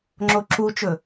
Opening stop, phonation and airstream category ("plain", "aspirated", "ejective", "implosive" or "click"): click